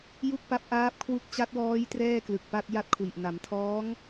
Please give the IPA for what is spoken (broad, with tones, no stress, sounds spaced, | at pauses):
j u˥˩ k̚ p a˦˥ p̚ ʔ aː˦˥ p̚ kʰ w u˦˥ k̚ t͡ɕ a˦˥ t̚ w ɔː˦˥ j t r ɛː˥˩ k l ɯ˨˩ k̚ p a˥˩ t̚ j a˥˩ t̚ kʰ w i˨˩ ʔ n a˩˦ m tʰ ɔː˦˥ ŋ